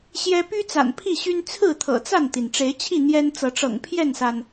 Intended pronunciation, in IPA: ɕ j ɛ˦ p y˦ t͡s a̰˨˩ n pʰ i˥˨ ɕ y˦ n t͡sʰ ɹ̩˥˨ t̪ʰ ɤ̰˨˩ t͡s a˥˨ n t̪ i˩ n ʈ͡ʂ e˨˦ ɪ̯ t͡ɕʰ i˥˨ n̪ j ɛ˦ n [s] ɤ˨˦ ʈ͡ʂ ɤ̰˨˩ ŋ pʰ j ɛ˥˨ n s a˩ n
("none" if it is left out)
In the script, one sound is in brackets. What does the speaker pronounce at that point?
t͡s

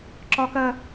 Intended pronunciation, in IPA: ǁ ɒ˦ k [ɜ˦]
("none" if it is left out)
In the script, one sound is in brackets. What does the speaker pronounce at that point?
ɜ˦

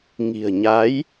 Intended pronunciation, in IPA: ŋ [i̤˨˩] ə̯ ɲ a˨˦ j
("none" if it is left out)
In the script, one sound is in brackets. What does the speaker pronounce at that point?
i̤˨˩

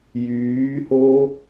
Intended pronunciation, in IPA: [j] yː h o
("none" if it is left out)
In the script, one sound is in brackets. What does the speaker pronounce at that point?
j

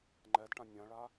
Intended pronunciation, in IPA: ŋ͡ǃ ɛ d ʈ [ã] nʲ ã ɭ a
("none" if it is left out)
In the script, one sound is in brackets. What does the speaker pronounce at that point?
ã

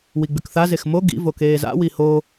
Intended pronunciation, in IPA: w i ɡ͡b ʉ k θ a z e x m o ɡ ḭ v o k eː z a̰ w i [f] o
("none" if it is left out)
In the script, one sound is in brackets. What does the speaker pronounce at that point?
h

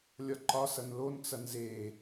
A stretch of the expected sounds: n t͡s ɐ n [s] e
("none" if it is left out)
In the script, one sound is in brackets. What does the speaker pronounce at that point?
z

